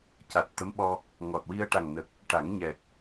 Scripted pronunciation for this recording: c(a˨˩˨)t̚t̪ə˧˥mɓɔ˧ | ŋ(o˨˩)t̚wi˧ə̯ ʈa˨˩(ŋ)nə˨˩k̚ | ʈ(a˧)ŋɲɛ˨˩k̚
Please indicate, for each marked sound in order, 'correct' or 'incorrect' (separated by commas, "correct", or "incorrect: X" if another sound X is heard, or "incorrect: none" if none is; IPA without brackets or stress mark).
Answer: incorrect: a˨˩, incorrect: ɔ˨˩, correct, incorrect: a˨˩˦